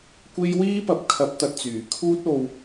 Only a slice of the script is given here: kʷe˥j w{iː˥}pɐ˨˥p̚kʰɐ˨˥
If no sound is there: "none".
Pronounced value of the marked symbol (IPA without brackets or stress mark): iː˥